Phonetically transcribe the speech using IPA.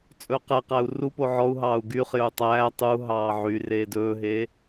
t͡sʼ ɵː q ɛ q æ u̯ r u p o ʕ ɔ u̯ ɦ ɑː u̯ ɡ yː χ j ɵ u̯ tˤ æː tˤ u ɦ ɑː ʕ y r eː d ɵː ɦ eː

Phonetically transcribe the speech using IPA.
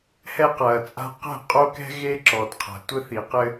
h ɛ˦ q ɐː˨ t͡sʼ a̤˦ q ɛ̤˦˨ qʼ o˦ k ɛ̤˦ ɣ e˦ ǁ ɔ˨ d qʰ a̤˨ tʷ ɘ˦ θ i˨ q ɘ˦

